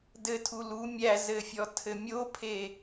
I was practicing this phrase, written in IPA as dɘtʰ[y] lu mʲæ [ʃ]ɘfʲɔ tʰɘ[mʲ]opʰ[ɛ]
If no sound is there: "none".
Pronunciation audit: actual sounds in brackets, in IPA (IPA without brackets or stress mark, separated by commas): u, z, mʲ, e